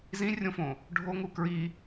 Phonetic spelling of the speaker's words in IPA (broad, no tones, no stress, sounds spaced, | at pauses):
z ĩ rʲ õ f õ | ɖʱ o ŋ u k ɹ i